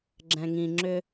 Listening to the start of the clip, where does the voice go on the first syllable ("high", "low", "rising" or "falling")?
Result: low